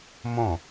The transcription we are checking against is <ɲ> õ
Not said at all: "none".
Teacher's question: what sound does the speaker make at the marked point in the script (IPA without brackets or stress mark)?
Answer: m